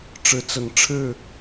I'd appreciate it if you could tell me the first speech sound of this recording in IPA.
ʈ͡ʂ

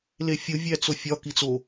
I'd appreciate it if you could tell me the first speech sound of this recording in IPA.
l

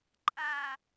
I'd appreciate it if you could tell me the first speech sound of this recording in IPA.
ǃʼ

